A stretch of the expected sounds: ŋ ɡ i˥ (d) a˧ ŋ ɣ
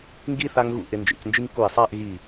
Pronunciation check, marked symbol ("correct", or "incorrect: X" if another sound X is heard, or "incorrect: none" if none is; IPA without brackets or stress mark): incorrect: θ